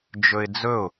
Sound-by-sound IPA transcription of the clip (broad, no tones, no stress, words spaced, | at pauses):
d͡ʒɵɪ̯d͡zɵʊ̯